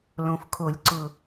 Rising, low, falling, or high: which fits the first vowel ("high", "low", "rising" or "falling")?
low